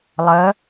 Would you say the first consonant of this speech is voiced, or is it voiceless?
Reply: voiced